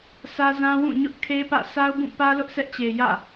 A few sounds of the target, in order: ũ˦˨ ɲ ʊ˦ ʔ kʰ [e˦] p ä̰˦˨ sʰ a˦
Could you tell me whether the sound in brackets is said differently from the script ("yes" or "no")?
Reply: no